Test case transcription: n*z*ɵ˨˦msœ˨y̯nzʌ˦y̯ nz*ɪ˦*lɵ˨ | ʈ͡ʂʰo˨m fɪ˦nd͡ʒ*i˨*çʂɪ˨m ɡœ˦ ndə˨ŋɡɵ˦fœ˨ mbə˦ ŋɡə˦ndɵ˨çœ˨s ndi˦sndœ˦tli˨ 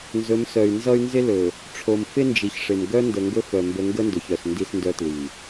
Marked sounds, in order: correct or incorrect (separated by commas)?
correct, correct, correct